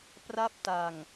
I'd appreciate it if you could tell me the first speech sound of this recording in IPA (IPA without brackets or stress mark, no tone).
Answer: p